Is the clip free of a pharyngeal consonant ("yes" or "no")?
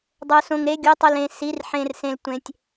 no